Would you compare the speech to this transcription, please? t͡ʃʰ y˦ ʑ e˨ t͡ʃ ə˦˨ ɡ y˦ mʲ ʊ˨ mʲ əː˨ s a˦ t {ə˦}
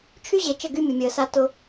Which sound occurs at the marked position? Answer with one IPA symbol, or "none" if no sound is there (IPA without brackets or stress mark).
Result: ʊ˦